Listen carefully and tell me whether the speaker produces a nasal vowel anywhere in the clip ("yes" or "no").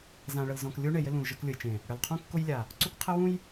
yes